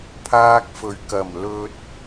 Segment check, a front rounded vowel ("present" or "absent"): absent